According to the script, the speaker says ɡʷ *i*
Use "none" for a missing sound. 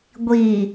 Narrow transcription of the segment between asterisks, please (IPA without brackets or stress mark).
i